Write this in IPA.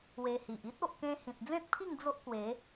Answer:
w e˧ h i˨ ʔ i˦ t̚ o˨ ʔ k ẽ˧ h ĩ˨ t̚ d͡z ẽ˦ t̚ pʰ i˥˧ ŋ d͡z o˦ ʔ k w e˨˦

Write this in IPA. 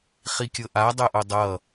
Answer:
χ i kʲ ɤ ʔ a dˤ ɜ ʔ o dˤ ʌ

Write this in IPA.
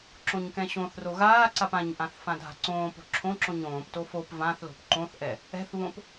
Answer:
ǁ õ ɲ k ɛ̃ ɕ õ θ r o ɣ aː ǀ a p ã ɲ ʔ ã θ f ã dʱ a̤ ǀ õː p o̤ ǁʰ õ ǁ õ ɲ õː p t o f o p v ã θ l o̤ p ǃ õ θ ʔ ɛ | ɛ̤ θ β õ p

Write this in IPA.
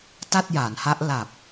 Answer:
t a˥˩ t̚ j aː˩˦ n h a˦˥ ʔ l a˨˩ p̚

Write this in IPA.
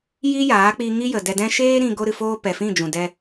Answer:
j i˦ j aː˨˦ k͡p i˧ ŋ i˦ j ə˨ d ɛ˧ d ɛ̃˦ ʃ eː˦ ɾ ĩ˧ ɡ o˦ ɾ ɨ˧ f oː˦ p ɛ˨ f ĩ˦˨ d͡ʒ ũ˨ d ɛ˧

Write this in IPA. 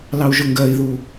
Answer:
l ɑ u̯ ʒ ʊ ŋ ɡ ɜ i̯ ð u

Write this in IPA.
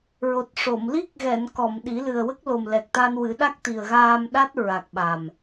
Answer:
ɹ o˨˩ t̚ ʂ o˨˩˨ m l i˦˥ k̚ ɣ ɛ˨˩˨ n k ɔ˨˩˨ m ɗ i˨˩˦ l ɨ˨˩ ə̯ w ə˦˥ k̚ l o˨˩ m l ɛ˨˩ k̚ t̪ a˧ n w ɨ˨˩˦ ɗ a˦˥ k̚ t̪ i˨˩ ə̯ ɣ aː˧ m ɗ a˦˥ t̚ ɹ a˨˩ k̚ ɓ a˨˩ m

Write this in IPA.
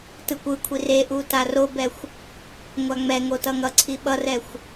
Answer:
t ɯ kʷ ɯ kʷʰ i r e ʔ u t a r o b ɛ xʷ | ŋʷ a ŋ͡m ɛ ŋ o t ʌ ŋ ʌ ǀʰ i ɓ ʌ r ɛ xʷ

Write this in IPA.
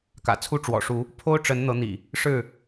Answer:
k ä̰˨˩ t͡sʰ u˦ ʈ͡ʂ w ɔ̰˨˩ ʂ u˨˦ | pʰ o˦ ʊ̯ ʈ͡ʂ ə˨˦ n n̪ ɤ˨˦ n̪ ḭ˨˩ | ʂ ɻ̩˥˨

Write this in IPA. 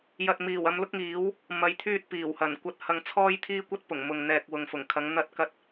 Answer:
j ɐ˨ t̚ m iː˨˩ w ɐ˨˧ m l ʊ˥ k̚ ŋ iː˨˥ w | m ɐ˨˧ j t̪ʰ yː˧ t̚ p iː˨˩ w h ɐ˨˩ n kʷ ɐ˧ t̚ h ɐ˧ ŋ t͡sʰ ɔː˥ j t̪ʰ iː˥ kʷ ɐ˥ t̚ p ʊ˨˩ ŋ m ʊ˨ ŋ n̪ ɛː˨ k̚ w ʊ˨ ŋ f ʊ˨˩ ŋ kʰ ɐ˨˧ ŋ n̪ ɐ˧ t̚ k ɐ˧ t̚

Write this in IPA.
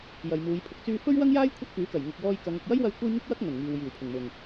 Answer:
j ɐ˨ j m uː˨˧ j pʰ ʊ˨ k̚ t͡s yː˧ f ɵ˥ ɥ w ɐ˥ ŋ j aː˥ j kʷʰ ɐ˥ t̚ k yː˨˥ k ɐ˨˩ j ŋ ʊ˨ k̚ w ɔː˧ j k ɐ˨˧ ŋ ʊ˨ k̚ j ɐ˥ j w ɐ˧ j kʷ ɐ˥ j ŋ ɪ˥ k̚ w ɐ˥ k̚ ŋ ɵ˨˩ n ŋ iː˨ w j iː˨˩ w pʰ ɪ˨˩ ŋ m ʊ˨˩ ŋ

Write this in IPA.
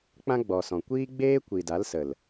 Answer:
k͡p ã˦ ɡ͡b ɔ˨ s ɔ̃˨ kʷ iː˦ ɡ͡b eː˦ kʷ i˨ d a˨˦ l s ə˨ l

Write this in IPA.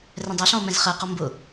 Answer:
r ɛ̃ dˤ æ ɬ ɔ̃ o̯ m ɛ̃ z χ ɜ q ɔ m b ʊ

